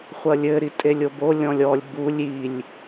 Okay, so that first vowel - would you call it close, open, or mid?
open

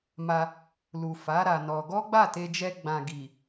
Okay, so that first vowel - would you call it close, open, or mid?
open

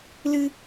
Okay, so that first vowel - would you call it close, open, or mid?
close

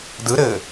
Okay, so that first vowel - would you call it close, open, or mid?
close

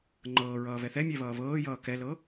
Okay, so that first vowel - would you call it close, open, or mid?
mid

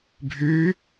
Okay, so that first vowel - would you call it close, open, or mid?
close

